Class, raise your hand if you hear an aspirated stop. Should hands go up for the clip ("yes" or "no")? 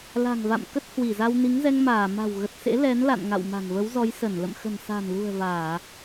no